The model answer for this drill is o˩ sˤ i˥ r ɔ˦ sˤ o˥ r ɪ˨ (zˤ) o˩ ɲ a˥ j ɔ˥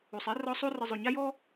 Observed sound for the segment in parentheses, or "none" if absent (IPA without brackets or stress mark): zˤ